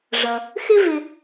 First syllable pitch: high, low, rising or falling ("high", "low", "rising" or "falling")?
low